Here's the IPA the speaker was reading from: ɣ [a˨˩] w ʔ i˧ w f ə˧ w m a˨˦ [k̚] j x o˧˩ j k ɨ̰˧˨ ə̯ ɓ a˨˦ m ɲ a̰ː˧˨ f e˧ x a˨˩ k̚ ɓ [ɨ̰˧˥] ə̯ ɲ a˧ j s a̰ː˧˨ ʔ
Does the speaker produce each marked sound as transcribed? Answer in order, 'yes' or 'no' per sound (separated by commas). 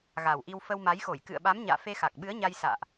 yes, no, no